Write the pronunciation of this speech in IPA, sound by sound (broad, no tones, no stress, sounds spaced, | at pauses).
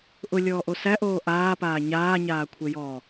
ʔ ʊ lʲ ɔː ʔ o s æ ʔ oː ʔ aː p aː ɲ aː ɲ aː kʷʰ e j ɔː